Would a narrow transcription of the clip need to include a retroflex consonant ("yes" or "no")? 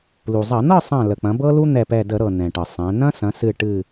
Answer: yes